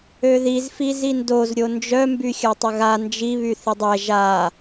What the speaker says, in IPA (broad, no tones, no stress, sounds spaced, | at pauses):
ø ð i z f i z i n d o z ɾʲ o n d͡ʒ œ m b y xʲ a tˤ ə ɣ a n d͡ʒ i β y θ i dˤ ɛ ʒ a